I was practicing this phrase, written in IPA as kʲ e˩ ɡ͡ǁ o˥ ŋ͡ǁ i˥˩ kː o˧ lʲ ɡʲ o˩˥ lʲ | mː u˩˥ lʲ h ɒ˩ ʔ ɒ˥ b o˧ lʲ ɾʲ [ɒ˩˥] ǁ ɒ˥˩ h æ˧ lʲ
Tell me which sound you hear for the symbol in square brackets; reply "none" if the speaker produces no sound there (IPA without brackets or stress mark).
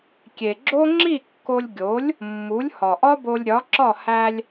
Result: ɒ˩˥